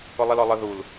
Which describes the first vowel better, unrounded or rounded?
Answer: rounded